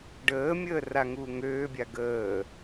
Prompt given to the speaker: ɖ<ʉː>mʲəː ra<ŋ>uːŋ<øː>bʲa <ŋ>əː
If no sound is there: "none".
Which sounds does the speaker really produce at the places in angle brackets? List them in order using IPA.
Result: əː, ŋ, øː, ɡ

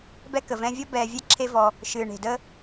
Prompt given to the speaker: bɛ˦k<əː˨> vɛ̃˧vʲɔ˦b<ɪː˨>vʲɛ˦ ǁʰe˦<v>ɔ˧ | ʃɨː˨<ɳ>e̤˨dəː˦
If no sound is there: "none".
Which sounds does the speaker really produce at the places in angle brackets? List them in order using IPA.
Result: ə˨, ɛː˨, v, ɳ

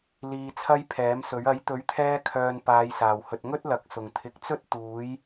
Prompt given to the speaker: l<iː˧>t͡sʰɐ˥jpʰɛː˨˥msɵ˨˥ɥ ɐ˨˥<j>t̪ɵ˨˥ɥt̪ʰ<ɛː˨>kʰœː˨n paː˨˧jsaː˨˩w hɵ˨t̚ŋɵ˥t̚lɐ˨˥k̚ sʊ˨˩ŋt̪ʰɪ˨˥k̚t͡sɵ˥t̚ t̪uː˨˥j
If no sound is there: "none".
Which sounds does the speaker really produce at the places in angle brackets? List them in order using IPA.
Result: iː˧, j, ɛː˧

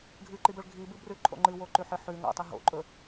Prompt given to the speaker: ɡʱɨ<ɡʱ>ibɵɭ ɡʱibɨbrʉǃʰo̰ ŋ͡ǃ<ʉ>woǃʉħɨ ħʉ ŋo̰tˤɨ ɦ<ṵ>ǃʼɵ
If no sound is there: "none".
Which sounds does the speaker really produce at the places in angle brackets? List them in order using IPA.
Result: ǃ, ɨ, o̰

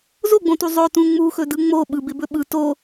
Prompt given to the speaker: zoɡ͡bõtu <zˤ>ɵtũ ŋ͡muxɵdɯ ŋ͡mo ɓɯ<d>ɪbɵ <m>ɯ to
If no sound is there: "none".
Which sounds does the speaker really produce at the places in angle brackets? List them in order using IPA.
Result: zˤ, b, ɓ

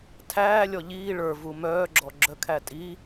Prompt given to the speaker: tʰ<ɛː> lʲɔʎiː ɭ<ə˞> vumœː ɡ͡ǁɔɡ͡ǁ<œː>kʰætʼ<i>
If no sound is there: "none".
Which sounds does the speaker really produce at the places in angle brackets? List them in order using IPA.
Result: æː, ə˞, œ, i

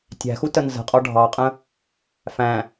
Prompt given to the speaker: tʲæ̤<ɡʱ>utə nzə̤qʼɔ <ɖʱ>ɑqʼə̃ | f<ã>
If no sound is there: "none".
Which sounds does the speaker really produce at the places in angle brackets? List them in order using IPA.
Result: x, ɖʱ, æ̃

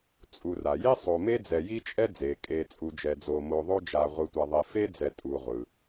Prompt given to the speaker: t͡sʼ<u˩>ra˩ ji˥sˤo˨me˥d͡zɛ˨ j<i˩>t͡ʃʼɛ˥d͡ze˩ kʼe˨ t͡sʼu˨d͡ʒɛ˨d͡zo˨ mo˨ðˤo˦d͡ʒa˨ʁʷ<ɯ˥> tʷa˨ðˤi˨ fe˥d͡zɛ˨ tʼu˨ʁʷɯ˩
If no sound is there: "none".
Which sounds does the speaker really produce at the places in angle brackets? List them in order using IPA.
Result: u˨, i˥, ɯ˨

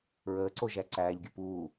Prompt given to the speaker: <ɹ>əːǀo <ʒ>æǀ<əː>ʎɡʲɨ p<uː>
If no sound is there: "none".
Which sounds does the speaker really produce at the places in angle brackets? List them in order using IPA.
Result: ɹ, ʒ, æː, uː

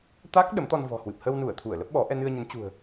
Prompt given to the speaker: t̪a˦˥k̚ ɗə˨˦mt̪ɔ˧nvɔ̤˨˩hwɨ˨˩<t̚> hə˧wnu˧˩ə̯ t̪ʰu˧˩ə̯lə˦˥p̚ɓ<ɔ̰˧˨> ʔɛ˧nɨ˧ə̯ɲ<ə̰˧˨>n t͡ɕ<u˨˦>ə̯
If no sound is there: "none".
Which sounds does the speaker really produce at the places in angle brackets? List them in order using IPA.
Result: p̚, ɔ˨˦, ə˨˦, ṳ˨˩

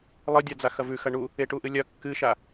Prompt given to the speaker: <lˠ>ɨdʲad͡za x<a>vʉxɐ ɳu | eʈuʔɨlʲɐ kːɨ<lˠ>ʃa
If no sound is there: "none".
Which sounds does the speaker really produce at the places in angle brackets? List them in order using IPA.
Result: lˠ, ɐ, none

